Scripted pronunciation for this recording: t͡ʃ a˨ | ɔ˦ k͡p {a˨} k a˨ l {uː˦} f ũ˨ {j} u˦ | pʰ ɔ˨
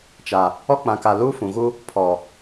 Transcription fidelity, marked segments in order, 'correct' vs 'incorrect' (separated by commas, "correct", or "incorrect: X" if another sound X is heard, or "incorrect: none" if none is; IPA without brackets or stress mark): incorrect: ã˨, correct, incorrect: ɣ